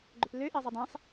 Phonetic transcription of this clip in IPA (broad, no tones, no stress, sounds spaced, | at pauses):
ɡ͡ǃ ø p l ø ʔ e zˤ i dˤ ẽ sˤ